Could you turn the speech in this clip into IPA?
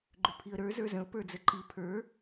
ɡ͡ǃ ʏ pʰ i ə̯ ɾ ə˞ z ə˞ z ə̃ ʊ̯ p ə˞ d͡z ə ǃ i pʰ ə˞

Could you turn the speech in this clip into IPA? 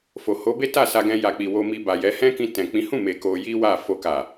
f o˨ h o˨˦ b e˦ t a˦˨ s a˧ ɡ ɛ̃˧ j a˨ k͡p i˨ w o˧ m i˧ b a˨ j ɛ˨˦ h ɛ̃˦ k ĩ˧ t ɛ̃˨ k͡p ĩ˨˦ h ũ˦˨ m e˨ k o˧ j i˦ w a˦˨ f o˧ k a˨

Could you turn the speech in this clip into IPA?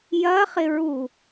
j ɐ χ ɪ ɹ u

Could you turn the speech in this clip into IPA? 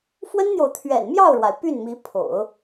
f w ə˥ n n̪ j o˨ ʊ̯ t̪ʰ ɥ ɛ̰˨˩ n m j ɑ˥˩ ʊ̯ ɻ w a˩ ɪ̯ p y˥˩ n m i˧˥ pʰ o̰˨˩˦ ʊ̯

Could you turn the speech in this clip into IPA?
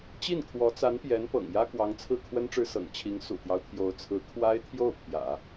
t͡ɕ i˥˩ n kʰ w ɔ˧˥ t͡s a˧˥ n p j ɛ˧˥ n p ɤ̰˨˩ ŋ j ä˥ k w ɑ˧˥ ŋ t͡sʰ ɹ̩˥˩ kʰ w ə˥ n ʈ͡ʂ ɻ̩˥ s ɤ̰˨˩ ŋ t͡ɕʰ i˧˥ ŋ s ṵ˨˩ t̪ j ɑ˦ ʊ̯ t̪ʰ j o˧˥ ʊ̯ t͡sʰ ɹ̩˧˥ kʰ w a˥ ɪ̯ t̪ʰ j o˥˩ ʊ̯ pʰ j ä̰˨˩˦

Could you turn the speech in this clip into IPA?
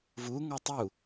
v u ŋ ɔ tˤ u

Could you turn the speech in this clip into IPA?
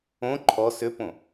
õ ǃʰ ɔ s ʏ p õ

